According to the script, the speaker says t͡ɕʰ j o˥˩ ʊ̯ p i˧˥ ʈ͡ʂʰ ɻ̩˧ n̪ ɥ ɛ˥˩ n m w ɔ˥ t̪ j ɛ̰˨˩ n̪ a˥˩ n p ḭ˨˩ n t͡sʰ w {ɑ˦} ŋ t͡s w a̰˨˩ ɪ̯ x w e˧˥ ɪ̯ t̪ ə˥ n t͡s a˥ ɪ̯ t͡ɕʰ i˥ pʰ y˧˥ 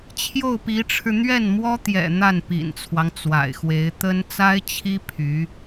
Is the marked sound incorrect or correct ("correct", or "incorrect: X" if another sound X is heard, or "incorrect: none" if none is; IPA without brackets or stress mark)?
correct